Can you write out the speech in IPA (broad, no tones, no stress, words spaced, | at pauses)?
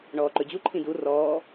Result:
ɳɔːǃɵd͡ʑu ǃʰĩdu rɔː